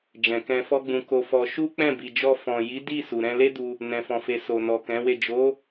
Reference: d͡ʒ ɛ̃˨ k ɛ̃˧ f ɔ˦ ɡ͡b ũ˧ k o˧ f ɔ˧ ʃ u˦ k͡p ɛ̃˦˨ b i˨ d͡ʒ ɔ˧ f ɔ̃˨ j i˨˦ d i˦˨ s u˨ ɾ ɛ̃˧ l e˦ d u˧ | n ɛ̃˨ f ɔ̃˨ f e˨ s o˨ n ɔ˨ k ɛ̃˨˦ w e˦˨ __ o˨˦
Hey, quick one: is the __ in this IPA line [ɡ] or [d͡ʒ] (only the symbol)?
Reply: d͡ʒ